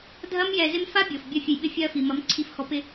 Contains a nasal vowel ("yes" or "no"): no